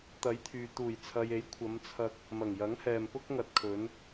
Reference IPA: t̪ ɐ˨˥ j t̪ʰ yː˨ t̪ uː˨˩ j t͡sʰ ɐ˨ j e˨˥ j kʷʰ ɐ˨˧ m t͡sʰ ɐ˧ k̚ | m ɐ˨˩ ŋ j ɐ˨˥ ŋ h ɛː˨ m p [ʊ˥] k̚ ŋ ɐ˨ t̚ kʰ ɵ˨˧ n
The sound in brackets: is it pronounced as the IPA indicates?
yes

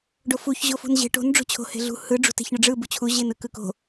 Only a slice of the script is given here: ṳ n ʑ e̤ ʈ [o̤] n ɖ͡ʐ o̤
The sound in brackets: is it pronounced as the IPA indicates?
yes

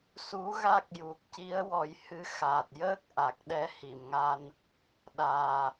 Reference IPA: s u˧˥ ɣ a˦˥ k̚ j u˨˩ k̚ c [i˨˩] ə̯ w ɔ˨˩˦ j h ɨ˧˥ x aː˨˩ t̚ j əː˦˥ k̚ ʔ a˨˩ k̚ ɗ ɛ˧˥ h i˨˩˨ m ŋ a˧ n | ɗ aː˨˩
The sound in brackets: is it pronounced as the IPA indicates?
no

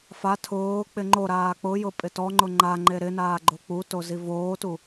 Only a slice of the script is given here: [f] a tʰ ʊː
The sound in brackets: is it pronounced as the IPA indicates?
yes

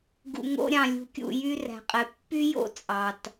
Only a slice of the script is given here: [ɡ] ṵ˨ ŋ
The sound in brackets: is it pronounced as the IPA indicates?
yes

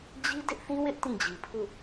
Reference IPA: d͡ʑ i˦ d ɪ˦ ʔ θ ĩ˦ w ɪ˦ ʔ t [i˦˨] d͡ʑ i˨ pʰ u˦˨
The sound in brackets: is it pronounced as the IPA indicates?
no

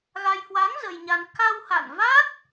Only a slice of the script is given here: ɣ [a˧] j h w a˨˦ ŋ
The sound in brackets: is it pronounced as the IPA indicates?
yes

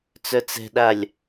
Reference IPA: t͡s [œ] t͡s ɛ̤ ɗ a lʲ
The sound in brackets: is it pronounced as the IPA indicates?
yes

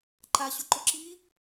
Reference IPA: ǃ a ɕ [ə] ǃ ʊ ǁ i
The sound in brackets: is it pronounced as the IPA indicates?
no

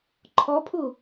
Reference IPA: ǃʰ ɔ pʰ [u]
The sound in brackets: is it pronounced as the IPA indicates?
yes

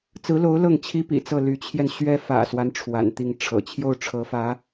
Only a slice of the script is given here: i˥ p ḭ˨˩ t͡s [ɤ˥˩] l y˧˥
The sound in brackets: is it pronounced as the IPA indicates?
yes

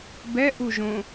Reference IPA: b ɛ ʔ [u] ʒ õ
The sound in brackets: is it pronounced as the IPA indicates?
yes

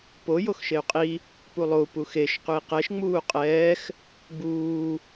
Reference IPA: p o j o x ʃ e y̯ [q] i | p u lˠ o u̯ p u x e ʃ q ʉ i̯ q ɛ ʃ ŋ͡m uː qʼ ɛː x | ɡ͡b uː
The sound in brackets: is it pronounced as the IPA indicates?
no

